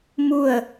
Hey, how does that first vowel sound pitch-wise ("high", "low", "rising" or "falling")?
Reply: falling